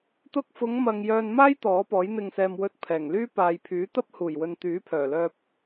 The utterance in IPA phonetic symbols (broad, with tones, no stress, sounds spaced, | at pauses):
t̪ ʊ˧ k̚ f ʊ˨˧ ŋ m ɐ˨ ŋ j œː˧ n m aː˥ j t̪ ɔː˨˥ p ɔː˨˥ j n̪ ɪ˧ ŋ s ɛː˧ m w ɵ˧ t̚ pʰ ɛː˨˩ ŋ l yː˥ p aː˨ j pʰ yː˨˥ t̪ ɐ˥ p̚ h uː˨˩ j w ɵ˨ n t̪ yː˨˥ pʰ œː˨˩ l œː˧ p̚